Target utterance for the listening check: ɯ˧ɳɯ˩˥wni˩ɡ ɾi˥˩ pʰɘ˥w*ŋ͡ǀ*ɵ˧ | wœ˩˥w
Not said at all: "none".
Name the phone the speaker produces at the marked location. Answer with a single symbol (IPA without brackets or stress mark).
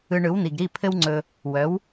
ŋ͡ǀ